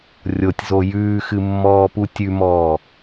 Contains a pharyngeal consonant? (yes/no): no